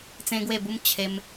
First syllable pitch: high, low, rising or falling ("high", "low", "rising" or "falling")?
high